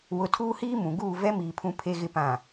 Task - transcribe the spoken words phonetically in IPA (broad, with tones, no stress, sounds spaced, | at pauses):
w ʊ˨ tʰ uː˦ h iː˦ m ũ˨ ɡ uː˦˨ v ɛ˦ m iː˨ pʰ ũ˨ pʰ e˨ ɣ ɪ˨ p ã˨